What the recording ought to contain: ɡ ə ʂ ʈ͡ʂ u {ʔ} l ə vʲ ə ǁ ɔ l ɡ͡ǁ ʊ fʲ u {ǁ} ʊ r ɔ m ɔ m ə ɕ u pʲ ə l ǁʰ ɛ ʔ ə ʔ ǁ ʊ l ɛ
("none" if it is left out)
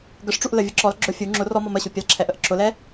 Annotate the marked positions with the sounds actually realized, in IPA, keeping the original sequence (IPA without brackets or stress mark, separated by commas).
ʔ, ŋ͡ǁ